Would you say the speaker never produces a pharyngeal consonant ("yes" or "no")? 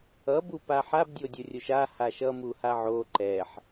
no